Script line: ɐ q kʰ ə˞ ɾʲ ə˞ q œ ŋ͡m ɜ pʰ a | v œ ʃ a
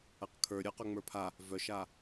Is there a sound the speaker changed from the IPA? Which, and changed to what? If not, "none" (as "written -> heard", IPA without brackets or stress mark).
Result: ɜ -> ə˞